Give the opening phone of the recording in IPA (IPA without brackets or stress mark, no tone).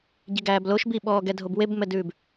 ɟ